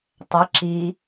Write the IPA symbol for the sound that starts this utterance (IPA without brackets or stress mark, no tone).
tˤ